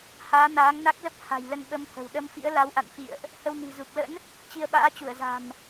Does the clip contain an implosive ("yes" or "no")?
yes